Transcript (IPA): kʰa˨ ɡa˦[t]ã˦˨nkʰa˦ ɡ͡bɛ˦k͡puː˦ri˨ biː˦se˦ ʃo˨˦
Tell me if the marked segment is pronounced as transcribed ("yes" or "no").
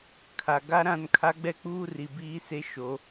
no